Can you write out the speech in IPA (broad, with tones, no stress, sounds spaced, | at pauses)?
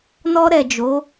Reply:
n ɔ˧ ɾ ɛ˨ d͡ʒ o˨˦